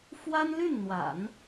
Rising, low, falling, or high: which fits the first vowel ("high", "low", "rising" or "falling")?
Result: high